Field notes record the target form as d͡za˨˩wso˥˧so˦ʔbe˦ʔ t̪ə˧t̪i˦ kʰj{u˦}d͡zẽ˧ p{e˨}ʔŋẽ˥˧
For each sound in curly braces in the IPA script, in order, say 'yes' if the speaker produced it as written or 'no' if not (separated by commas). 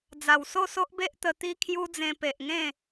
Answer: yes, yes